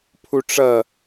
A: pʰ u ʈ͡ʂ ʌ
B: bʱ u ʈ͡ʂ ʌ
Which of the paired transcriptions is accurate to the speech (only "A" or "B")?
A